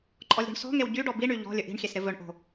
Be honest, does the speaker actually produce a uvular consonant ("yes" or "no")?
no